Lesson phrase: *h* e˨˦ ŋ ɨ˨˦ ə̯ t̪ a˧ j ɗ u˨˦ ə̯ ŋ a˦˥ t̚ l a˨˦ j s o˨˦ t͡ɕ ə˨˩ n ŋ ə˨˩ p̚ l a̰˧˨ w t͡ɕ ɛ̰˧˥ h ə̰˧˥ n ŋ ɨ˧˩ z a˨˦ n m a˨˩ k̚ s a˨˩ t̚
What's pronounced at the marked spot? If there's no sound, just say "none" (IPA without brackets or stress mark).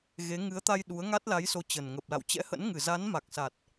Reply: ɣ